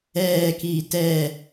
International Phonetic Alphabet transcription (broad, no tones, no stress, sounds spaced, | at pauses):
ɛː k iː t ɛː